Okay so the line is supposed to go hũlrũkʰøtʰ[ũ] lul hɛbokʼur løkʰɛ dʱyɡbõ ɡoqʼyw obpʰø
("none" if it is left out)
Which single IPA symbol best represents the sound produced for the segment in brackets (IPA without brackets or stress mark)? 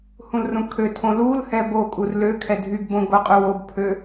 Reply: õ